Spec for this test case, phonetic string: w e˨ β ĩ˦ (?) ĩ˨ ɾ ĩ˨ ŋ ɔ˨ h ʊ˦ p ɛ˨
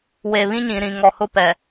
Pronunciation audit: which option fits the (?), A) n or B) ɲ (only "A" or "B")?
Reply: B